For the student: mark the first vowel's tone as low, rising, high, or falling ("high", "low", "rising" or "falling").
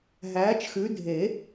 rising